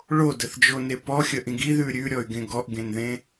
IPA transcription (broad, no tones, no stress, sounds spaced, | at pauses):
ɭ o d ə θ d͡ʒ o n e p ɔ xʲ ə ʔ ĩ ɡ i ð ʉ ɾʲ ʉ ɾʲ ɔ y̯ ɡ ẽ ɡ ɔ ʔ ɡ ẽ n ð ẽ